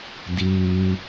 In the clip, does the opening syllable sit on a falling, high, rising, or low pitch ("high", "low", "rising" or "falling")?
high